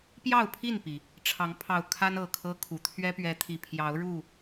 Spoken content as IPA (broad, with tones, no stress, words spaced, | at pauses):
pjɑ˥˨ʊ̯pʰi˥˨npi˩ | ʈ͡ʂʰɑ˨˦ŋpʰɑ˨˩ʊ̯kʰa˦n ɤ˨˩kʰɤ˦kʰu˨˩ t̪ʰɥɛ˦pɥɛ˨˦t̪ʰi˨˩ pʰjɑ˨˦ʊ̯ɻu˥˨